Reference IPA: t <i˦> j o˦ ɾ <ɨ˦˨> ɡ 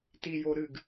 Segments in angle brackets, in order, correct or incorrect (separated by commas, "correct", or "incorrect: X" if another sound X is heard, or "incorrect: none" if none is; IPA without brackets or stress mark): correct, correct